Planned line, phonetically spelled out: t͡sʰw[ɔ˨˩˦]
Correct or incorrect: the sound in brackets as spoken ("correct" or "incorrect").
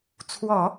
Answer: correct